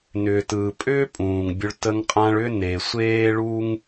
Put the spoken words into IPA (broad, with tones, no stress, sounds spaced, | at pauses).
n ʏː˨ t ɯː˨ pʼ ʏː˦ pʼ ũː˨ ŋ bʲ ʊ˧ ɭ t ə˧ ŋ qʼ ã˧ ɭ ʏ˦ n e˨ sʷ eː˦ ɭ u˦ ŋ